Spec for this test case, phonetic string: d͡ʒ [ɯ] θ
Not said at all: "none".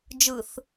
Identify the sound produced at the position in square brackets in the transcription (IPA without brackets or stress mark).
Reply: ɯ